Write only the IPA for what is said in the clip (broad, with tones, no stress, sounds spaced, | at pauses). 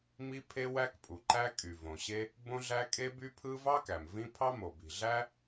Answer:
m i˥ pʰ e˥ w æ˥ k pʼ u˩ ǃ æ˥ kʼ y˩ v õ˩ ɕ e˥ | b õ˥ ɮ æ˥ kʼ e˥ b y˥ pʰ ɯ˥ v ɑ˥ k æ˩ m v ĩ˥ pʰ ɑ˥ m o˩ b i̤˩ ɮ æ˥